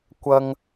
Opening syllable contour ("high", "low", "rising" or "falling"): low